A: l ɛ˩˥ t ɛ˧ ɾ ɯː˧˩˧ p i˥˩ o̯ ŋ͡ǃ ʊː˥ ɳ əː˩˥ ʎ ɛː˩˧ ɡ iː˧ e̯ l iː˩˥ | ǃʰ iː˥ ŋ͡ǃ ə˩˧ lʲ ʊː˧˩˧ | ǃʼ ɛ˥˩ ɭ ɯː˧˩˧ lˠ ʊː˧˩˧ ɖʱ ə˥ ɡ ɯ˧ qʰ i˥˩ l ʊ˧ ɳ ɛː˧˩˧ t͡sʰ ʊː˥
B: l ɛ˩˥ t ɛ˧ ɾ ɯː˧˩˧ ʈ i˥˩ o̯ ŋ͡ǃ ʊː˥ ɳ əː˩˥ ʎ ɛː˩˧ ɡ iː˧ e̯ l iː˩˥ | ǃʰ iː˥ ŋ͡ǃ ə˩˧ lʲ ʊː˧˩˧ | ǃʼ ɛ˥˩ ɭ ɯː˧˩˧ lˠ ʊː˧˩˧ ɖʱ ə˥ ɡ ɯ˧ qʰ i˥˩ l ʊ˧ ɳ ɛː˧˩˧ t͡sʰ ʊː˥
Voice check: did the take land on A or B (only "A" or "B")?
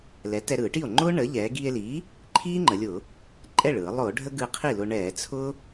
B